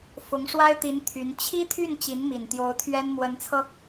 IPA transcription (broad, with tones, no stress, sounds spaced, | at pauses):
f ʊ˧˥ ŋ ʂ w a˥ ɪ̯ t̪ i˧˥ n t̪ʰ y˧˥ n t͡ɕʰ i˥ t̪ʰ y˥˩ n t͡ɕ i˧˥ n m i˨˩ n t̪ j o˧˥ ʊ̯ t̪ʰ ɥ ɛ˥ n m w ə˧˥ n t͡sʰ ɤ˧